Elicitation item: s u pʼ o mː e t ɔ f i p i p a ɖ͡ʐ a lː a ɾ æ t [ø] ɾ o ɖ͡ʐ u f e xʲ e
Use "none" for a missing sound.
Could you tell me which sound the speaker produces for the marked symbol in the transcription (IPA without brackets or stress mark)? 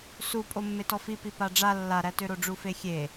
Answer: ø